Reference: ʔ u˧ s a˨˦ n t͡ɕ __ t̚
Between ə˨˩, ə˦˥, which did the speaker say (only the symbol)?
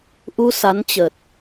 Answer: ə˨˩